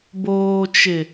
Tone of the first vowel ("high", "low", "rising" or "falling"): low